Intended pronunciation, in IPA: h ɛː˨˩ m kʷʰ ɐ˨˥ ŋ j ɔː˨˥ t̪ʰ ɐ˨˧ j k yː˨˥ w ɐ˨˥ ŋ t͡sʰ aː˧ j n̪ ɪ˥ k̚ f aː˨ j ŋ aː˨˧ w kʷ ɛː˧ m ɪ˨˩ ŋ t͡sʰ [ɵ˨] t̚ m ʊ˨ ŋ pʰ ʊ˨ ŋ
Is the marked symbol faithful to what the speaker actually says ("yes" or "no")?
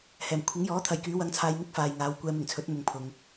no